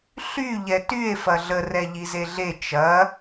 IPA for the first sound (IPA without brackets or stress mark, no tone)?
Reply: ɬ